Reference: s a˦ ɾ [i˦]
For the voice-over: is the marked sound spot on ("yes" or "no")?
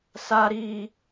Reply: no